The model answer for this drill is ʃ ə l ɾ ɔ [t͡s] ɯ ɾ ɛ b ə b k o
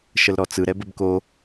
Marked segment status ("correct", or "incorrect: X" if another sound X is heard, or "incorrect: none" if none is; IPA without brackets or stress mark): correct